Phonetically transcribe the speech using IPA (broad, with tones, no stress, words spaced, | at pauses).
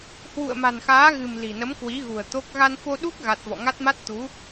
hwṵ˧˨ə̯ma̤˨˩nxaː˨˦ɣɨ̤˨˩m li̤˨˩nə˨˦mkwi˨˦ɣṳ˨˩ə̯ t̪o˦˥k̚ ɣa˧nfo˧ɗu˦˥k̚ ɣa˦˥t̚ vɔ̰˧˨ŋa˦˥t̚ma˦˥t̚t̪u˨˦